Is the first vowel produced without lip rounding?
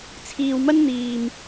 yes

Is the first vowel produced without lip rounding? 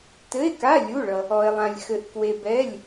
yes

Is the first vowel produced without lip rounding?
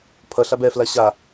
yes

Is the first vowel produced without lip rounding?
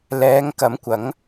yes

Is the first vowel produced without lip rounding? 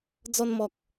no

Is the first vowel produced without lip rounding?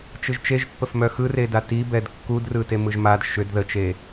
yes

